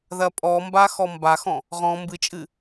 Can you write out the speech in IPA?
ð ɐ pʼ ɔ m b a x ɔ m b a x ɔ̃ | ʁ ɔ̃ m b ɨ t͡ʃʼ ɨ

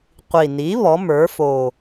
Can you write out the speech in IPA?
qʷ i˨˩ n i˩˥ β ɔ˩˥ m ə˞˩˥ f o˨˩

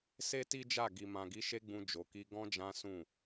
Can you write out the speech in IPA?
s e˦ t i˦ d͡ʒ a˦˨ ɡ i˨ m ã˨ ɡ i˨˦ ʃ e˦ ɡ͡b ũ˧ d͡ʒ o˨ k i˧ ɡ ɔ̃˦ d͡ʒ ã˦ s ũ˦˨

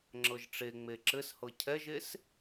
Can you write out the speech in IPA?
ŋ͡ǁ ɤ ʒ ʈ͡ʂ e ŋ͡m e ǁ ɘ s h ɤ cʰ ɛ ʒ e s

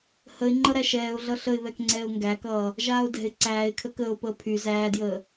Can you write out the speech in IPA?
h ə ɪ̯ ŋ͡ǃ ʌ ɾ æ ʃ ɛː ʊ̯ ɮ ʌ ɬ ə ɪ̯ β ɛ k ŋ͡ǀ ɛː ʊ̯ ŋ ɡ æ k ʌː | ʒ aː ʊ̯ d ɛ̤ ɪ̯ ǀ æː ɪ̯ kʰ ə k əː ʊ̯ p əː pʰ y z æː d j əː

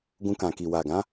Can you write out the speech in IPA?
ɡ ũ˧ k ã˨ k i˨ w a˨ ɡ ã˨˦

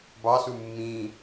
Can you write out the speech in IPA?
b ɑ s u mː ĩ

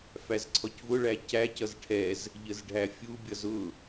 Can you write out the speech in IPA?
f æ z ǀʰ ɔ c v ʊ ɭ æ c æ c ʌ z ʈʰ ɛ z | ʎ ə z ɖʱ æ fʲ u bʲ ʌ z ʊ

